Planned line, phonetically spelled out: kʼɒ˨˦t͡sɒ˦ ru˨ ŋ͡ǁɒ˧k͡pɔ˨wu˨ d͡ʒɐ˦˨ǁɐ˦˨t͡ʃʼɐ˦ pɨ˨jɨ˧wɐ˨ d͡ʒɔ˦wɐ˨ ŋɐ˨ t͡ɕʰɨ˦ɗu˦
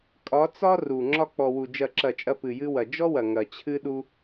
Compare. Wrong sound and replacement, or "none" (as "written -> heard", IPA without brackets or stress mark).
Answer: none